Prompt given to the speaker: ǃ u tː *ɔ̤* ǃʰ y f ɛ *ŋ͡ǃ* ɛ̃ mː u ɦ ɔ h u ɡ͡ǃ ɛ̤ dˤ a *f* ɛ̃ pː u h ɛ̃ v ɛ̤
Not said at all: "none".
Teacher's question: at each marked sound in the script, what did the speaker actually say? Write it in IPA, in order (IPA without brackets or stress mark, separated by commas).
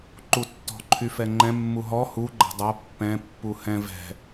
ɔ̤, ŋ͡ǃ, pː